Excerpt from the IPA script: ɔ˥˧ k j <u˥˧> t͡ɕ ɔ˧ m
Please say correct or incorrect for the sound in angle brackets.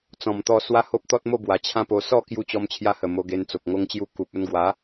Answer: incorrect